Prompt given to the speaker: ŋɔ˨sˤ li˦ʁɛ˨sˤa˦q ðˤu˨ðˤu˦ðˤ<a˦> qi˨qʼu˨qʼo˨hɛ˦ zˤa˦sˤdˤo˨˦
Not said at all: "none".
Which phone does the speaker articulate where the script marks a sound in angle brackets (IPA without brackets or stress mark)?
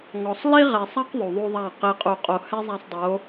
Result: a˦˨